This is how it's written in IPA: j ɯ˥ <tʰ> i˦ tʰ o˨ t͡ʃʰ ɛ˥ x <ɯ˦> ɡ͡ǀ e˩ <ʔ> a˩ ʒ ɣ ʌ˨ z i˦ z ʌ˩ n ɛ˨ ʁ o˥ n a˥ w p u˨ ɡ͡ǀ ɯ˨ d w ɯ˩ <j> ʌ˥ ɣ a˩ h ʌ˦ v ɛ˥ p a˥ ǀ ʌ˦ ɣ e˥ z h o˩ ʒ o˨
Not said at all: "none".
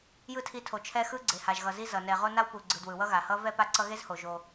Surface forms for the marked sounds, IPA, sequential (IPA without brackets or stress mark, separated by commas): tʰ, ɯ˦, h, w